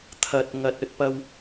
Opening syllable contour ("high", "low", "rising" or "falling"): low